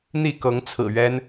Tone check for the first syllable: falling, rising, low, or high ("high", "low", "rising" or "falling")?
falling